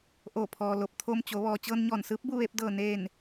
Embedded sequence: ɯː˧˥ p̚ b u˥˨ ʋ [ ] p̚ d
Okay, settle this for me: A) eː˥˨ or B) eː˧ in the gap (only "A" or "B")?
B